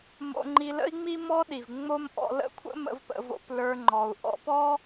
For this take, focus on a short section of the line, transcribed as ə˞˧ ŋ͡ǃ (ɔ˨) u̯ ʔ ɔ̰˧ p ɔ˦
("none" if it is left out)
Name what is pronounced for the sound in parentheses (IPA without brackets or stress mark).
ɔ˨